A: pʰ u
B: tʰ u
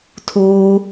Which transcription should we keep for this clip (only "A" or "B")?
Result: B